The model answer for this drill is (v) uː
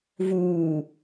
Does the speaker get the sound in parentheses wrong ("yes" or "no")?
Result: no